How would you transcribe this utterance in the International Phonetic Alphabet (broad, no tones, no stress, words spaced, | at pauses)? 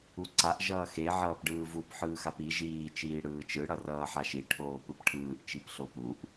uǀaʔ ʒʌːxe ʕʌːpɖɯːvup ħɯːxapi ʒiː t͡ʃiːɽɯːt͡ʃɯ ɽʌrʌːħaʃi ʈʰoːpɯpʈʰɯːʔ t͡ʃipɬopuʔ